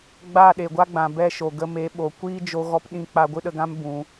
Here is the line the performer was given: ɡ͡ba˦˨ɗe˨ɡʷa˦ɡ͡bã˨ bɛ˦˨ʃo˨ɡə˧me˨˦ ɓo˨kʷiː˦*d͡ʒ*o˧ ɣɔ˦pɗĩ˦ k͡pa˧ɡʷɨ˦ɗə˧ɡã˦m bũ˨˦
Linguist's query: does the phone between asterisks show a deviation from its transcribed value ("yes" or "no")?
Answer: no